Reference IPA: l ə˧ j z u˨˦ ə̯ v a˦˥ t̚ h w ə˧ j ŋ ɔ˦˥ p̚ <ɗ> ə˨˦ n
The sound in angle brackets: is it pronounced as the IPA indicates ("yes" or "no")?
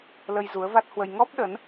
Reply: yes